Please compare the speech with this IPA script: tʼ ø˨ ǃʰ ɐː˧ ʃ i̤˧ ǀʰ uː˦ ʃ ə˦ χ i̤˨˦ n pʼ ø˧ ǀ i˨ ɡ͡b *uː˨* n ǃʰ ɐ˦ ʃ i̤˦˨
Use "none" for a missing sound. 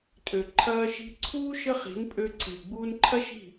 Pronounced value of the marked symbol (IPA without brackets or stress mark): uː˧